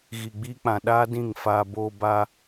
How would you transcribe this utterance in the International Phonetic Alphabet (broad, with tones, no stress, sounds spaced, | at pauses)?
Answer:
ɣ i˨ ɡ͡b iː˧ k͡p ã˨ ɗ aː˦ d ĩ˦˨ ŋ f aː˧ b oː˧ b aː˧